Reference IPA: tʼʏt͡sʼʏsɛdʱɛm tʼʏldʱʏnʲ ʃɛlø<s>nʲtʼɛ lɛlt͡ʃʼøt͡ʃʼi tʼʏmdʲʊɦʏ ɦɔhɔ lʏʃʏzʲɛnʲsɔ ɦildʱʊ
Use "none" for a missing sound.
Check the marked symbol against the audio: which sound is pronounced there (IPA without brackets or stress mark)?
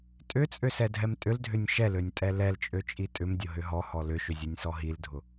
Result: none